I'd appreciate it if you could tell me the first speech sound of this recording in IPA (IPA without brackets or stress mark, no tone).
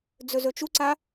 d͡z